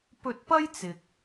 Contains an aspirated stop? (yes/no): no